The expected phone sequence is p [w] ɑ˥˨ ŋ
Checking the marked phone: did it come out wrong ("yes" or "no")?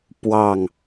no